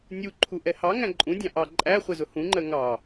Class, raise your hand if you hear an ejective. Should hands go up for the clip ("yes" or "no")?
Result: yes